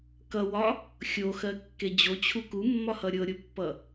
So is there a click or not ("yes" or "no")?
no